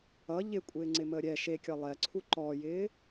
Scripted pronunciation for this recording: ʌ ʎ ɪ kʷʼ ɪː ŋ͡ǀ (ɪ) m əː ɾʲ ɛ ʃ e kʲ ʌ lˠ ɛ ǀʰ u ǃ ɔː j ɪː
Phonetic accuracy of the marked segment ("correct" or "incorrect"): correct